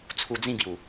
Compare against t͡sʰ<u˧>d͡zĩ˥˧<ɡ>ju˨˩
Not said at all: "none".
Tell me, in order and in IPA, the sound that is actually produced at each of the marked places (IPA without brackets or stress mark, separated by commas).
u˧, ɡ